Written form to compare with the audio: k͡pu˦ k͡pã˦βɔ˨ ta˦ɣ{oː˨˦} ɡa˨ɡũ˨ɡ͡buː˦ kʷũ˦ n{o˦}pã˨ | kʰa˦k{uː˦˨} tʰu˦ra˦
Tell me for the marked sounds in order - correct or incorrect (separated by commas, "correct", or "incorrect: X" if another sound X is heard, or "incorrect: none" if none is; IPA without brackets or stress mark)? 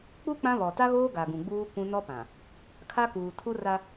incorrect: oː˦, incorrect: ɔ˦, incorrect: uː˨